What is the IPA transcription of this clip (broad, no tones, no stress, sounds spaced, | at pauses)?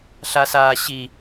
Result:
ɬ a s aː ɕ i